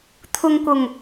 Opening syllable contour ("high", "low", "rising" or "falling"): low